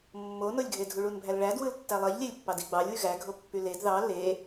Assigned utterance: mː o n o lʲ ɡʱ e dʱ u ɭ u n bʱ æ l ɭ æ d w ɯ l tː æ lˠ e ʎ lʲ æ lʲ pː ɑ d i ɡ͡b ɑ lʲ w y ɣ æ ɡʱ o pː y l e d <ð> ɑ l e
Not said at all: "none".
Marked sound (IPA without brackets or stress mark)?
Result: ð